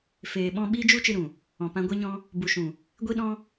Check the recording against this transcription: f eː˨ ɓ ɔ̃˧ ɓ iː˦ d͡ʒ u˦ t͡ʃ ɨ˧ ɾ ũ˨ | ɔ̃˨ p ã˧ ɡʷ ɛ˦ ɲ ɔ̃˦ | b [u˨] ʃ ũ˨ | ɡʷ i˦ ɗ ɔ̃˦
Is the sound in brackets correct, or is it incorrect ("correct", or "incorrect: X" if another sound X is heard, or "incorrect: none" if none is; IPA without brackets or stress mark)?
correct